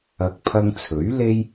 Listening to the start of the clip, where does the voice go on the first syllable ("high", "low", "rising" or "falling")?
rising